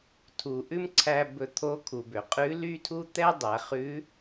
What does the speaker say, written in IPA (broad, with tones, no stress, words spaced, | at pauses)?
tʰu˩ʔʉ˥mǀʰæ˧ bɵ˧t̪ʰo˧˥kʰu˩bø˩ qʼʉ˧˥ly˥tʰu˥ t̪ɛ˥dˤæ˩˧χʉ˧˥